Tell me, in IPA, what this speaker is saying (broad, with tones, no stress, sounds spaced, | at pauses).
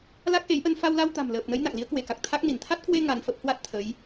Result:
l a˦˥ k̚ ʔ e˨˦ j ʔ ə˧ n f a˧ w l a˧ w t̪ a̤˨˩ m l əː˨˩ p̚ n ə˨˦ j n a̰˧˨ ŋ l i˨˦ ə̯ k w e˧˩ k a˨˩ k̚ t̪ʰ a˦˥ k̚ n i˧˩ n t̪ʰ a˦˥ t̚ k w e˧ ŋ a˧ n f ə˦˥ p̚ h w a˦˥ t̚ t̪ʰ ə˨˦ j